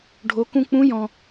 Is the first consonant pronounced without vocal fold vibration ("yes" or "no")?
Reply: no